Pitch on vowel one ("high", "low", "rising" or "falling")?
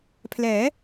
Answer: rising